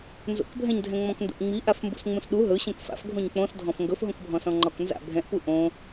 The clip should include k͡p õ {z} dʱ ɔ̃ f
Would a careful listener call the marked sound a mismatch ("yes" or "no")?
yes